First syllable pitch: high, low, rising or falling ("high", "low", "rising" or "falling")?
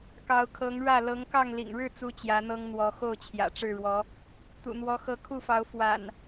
rising